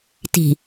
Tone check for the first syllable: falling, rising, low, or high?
low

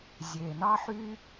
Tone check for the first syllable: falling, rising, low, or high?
low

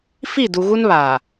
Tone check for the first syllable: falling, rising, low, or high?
falling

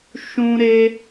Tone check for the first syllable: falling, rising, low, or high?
high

